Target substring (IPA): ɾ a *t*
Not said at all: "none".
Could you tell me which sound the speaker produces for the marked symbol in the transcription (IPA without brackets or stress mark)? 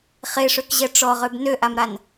n